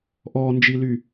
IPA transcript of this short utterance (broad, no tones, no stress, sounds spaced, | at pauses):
ʔ ɔ n d͡ʒ i l y